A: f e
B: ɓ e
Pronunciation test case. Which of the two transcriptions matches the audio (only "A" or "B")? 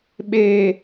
B